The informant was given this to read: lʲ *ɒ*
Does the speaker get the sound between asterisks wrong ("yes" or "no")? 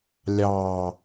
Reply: yes